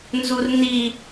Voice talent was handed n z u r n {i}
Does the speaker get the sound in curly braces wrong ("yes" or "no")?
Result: no